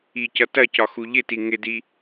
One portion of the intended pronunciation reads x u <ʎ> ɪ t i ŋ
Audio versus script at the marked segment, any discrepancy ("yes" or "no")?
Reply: no